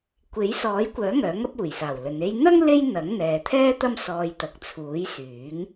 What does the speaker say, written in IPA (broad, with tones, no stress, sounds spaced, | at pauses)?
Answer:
kʷ e˨˥ j s ɔː˨˥ j kʷ œː˨˥ ŋ œː˨˥ ŋ ɐ˥ p̚ uː˨˩ j s aː˨˩ w l ɵ˨˧ n e˥ j n̪ ɐ˥ ŋ l e˥ j n̪ ɐ˨˥ ŋ n̪ ɛː˨ t̪ʰ ɛː˥ t̪ ɐ˥ m s ɔː˧ j t̪ ɐ˨˥ k̚ t͡sʰ uː˨˥ j s yː˨˥ ŋ